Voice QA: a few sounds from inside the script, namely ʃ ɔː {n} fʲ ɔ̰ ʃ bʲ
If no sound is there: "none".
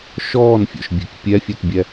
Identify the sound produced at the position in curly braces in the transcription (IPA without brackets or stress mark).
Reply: n